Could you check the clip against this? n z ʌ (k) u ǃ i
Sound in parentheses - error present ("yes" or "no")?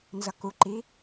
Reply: no